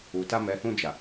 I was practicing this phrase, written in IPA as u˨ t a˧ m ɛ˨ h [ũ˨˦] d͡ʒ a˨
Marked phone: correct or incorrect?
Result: incorrect: ũ˧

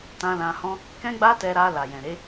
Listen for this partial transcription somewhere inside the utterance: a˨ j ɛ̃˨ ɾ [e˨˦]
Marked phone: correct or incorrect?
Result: correct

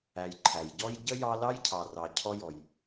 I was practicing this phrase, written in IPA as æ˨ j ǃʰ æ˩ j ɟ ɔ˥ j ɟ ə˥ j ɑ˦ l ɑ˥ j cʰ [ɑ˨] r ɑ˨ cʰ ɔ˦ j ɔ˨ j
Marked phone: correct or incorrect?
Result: correct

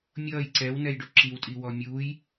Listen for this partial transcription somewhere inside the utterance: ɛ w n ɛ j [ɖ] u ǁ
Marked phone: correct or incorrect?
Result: correct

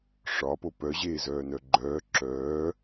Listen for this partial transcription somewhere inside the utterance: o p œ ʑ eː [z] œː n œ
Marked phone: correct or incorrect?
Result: correct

